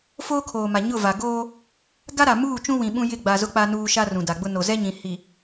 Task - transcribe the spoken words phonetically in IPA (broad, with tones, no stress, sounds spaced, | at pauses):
f oː˦ kʰ oː˨ m a˨ ɲ ʊ˦˨ v a˨ ɡ oː˦ | ɡ a˦ ɾ a˨ m uː˦˨ t͡ʃ ũ˦ w ĩ˨ ɓ ũ˦ j ɪ˦˨ ɡ͡b a˨ z ʊ˦ k͡p a˦ n uː˦ ʃ a˦ r ũ˨ d a˨ ɡ͡b ʊ˦ n o˨ z ɛ˦ ɲ ĩ˨ h i˨